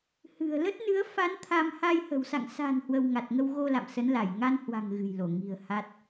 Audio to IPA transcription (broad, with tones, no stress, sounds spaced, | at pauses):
h ɨ̤˨˩ ə̯ l ə˦˥ t̚ n ɨ˨˦ ə̯ f a˨˦ n t̪ʰ a˧ m h a˧ j h ə̤˨˩ w s a̰˧˨ ŋ s a̤˨˩ n h w ə˧ w ŋ a˨˩ t̚ ŋ ə˧ w ɣ o˧ l a̰˧˨ m s ə˨˦ n l a˧˩ j ŋ a˧ n h w a̤˨˩ ŋ ɣ ɨ̤˨˩ j l o˧˩ ŋ i̤˨˩ ə̯ h a˦˥ t̚